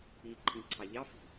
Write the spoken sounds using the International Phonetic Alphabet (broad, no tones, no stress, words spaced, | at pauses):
i ǃʰĩǀʰɑʎɑ fi̤